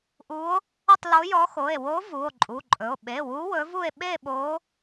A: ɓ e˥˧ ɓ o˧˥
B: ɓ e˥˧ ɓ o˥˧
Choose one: A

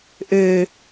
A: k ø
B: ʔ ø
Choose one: B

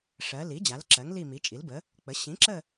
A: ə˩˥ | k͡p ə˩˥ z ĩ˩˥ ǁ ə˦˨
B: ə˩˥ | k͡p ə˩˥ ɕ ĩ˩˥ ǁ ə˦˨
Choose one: B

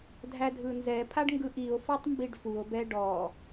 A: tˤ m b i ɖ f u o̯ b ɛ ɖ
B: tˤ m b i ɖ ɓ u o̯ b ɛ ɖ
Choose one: A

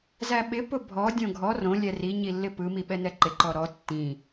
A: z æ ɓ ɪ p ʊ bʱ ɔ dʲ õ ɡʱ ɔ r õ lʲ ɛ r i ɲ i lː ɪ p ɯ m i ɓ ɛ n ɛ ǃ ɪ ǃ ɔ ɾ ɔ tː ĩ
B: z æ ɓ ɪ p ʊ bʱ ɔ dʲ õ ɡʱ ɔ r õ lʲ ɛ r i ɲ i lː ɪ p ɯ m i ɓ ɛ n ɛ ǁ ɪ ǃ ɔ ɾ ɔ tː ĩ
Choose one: A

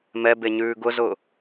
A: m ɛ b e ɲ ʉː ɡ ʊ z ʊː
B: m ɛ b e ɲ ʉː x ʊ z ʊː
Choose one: A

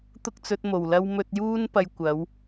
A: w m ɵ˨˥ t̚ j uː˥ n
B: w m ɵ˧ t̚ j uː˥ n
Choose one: B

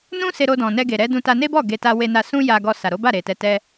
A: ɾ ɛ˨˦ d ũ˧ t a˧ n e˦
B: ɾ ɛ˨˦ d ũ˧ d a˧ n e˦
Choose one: A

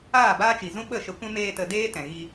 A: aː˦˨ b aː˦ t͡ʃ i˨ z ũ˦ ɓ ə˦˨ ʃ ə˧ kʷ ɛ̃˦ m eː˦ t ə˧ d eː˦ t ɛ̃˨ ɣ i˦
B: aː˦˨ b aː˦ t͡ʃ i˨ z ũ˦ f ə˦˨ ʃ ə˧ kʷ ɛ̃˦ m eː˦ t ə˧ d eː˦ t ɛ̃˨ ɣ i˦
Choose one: A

